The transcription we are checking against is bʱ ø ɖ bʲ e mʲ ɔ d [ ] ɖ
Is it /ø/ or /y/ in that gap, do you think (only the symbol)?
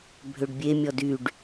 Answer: y